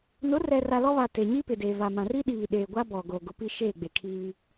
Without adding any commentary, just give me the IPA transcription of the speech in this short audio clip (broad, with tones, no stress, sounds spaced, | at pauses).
n ʊ˨˦ r ɛ˨ r a˨ l ɔ˦ β a˨ t e˨ ɲ i˦ p ɪ˨ d e˨ v a˨ m ã˨ r i˦ ɗ iː˨ ɗ eː˨ ɡʷ a˦ b ɔ˨ ɡ o˨ ɡ ʊ˨˦ p i˦ ʃ eː˦˨ ɡ͡b e˨ kʰ iː˦